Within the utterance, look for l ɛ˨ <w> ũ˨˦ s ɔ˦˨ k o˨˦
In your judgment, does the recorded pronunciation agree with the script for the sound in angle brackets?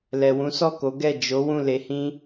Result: yes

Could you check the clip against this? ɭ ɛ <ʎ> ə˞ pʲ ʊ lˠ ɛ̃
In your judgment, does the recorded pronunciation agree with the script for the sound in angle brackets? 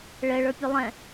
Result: no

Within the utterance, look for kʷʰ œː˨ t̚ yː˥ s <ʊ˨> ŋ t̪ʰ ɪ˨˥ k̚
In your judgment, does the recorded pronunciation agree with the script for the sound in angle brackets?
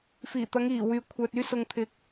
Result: yes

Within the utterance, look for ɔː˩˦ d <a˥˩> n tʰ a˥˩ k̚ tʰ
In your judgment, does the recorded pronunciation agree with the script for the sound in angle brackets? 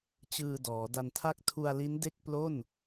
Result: no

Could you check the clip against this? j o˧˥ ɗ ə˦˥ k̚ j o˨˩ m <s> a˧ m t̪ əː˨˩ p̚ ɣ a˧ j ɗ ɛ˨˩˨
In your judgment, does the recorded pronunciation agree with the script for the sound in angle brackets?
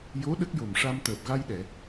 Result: no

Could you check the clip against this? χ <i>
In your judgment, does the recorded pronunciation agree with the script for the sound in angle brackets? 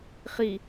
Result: yes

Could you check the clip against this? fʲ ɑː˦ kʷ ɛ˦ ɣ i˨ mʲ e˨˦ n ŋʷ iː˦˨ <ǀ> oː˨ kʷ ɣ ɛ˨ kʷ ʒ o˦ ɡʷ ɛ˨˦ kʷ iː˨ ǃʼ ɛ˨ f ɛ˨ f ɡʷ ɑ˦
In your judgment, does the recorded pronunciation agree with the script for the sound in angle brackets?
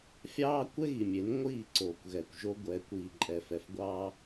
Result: yes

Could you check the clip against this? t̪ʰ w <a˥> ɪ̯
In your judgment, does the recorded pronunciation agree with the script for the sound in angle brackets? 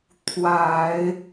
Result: no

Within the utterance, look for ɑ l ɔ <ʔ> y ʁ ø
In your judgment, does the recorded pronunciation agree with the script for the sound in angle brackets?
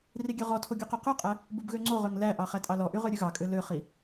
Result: yes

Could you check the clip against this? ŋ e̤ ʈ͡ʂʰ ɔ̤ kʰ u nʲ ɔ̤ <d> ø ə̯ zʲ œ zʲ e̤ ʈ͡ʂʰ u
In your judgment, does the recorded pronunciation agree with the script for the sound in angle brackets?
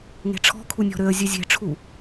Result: no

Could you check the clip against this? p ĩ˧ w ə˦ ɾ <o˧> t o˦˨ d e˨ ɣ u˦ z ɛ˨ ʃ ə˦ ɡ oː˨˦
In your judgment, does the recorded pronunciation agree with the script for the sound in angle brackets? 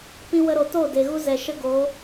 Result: no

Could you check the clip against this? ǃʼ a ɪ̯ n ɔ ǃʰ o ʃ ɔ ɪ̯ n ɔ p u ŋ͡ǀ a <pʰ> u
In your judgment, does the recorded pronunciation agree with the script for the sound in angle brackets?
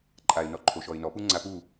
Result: no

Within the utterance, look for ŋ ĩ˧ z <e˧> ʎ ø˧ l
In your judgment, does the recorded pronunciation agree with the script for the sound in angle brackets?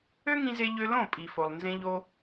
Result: yes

